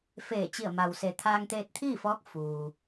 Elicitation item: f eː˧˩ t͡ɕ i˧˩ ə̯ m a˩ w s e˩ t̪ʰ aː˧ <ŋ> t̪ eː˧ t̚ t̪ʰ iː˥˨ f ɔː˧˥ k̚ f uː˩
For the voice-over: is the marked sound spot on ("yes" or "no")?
yes